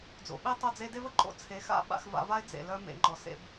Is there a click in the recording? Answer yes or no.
yes